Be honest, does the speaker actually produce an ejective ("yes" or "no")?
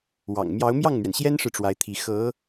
no